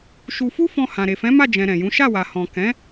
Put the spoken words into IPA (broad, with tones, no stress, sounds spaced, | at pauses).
ʃ u˧ f u˦ f ɔ̃˧ h ã˨ ɾ e˨ f ɛ̃˨˦ m a˦˨ d͡ʒ ɛ̃˨ ɾ ɛ̃˨ j ũ˨˦ ʃ a˦˨ w a˨ h ɔ̃˨ k ɛ̃˨˦